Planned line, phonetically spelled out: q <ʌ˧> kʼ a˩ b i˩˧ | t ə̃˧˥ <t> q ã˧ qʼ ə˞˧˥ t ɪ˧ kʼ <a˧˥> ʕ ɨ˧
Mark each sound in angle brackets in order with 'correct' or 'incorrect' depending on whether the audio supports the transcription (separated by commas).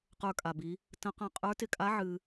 incorrect, incorrect, correct